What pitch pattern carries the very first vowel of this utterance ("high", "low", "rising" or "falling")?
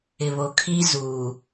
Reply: low